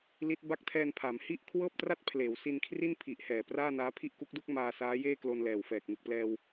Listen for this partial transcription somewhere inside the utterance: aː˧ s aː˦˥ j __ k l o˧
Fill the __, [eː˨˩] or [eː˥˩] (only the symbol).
eː˥˩